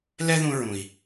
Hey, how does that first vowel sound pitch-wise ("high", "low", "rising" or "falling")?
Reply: high